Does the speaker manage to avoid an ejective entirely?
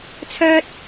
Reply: yes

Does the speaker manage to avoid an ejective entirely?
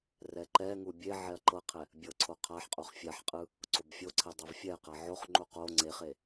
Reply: no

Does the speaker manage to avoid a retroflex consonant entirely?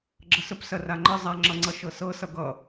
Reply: yes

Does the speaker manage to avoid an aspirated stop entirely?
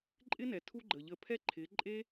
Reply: no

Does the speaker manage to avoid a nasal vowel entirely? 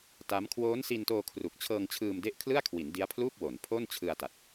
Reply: yes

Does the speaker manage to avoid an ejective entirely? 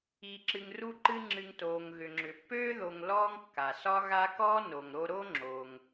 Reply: yes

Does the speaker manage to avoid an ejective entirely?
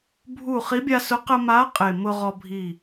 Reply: no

